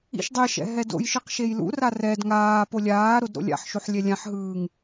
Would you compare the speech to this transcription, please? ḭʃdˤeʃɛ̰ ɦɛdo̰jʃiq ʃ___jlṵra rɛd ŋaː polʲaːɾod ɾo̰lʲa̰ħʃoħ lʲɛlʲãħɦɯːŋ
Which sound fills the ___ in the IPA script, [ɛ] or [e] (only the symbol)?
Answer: e